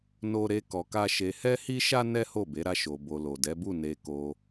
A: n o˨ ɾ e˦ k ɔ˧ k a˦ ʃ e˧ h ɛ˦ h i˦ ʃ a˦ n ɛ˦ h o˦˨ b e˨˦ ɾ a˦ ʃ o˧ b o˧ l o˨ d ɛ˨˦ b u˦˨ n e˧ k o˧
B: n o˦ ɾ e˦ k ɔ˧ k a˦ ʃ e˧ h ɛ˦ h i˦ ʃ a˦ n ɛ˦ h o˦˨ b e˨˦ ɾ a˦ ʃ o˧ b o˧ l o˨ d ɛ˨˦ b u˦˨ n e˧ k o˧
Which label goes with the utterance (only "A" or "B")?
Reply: B